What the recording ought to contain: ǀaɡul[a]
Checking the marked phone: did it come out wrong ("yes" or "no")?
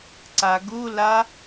no